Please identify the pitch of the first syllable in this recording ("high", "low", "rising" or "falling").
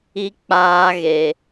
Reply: high